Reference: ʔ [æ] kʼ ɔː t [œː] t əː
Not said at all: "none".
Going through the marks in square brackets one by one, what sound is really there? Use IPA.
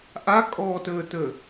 a, əː

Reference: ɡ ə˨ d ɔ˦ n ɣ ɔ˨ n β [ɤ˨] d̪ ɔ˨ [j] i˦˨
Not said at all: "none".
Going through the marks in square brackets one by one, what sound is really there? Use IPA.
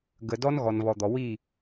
ɔ˨, w

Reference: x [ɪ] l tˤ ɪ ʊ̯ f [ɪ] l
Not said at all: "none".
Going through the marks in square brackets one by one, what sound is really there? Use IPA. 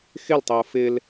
ɪ, ɪ

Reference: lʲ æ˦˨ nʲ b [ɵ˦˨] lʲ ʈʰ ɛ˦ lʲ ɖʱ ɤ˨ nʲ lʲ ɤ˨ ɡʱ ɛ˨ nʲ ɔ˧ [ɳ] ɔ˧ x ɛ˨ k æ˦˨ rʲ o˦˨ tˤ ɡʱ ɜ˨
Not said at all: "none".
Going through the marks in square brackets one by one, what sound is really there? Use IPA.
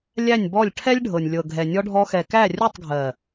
ɔ˦˨, ɖʱ

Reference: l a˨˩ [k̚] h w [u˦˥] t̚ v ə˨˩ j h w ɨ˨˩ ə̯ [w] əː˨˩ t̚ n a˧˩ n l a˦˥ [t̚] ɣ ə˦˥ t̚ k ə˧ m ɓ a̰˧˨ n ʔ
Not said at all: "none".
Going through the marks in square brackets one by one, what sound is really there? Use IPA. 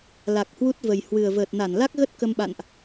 k̚, u˦˥, v, k̚

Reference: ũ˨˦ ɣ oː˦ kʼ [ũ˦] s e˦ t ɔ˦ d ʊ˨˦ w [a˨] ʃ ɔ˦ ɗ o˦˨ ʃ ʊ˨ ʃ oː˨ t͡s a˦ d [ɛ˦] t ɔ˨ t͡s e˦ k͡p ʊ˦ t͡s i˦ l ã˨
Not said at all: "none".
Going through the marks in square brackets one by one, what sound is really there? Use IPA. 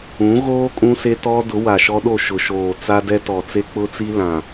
ũ˦, a˨, ɛ˦

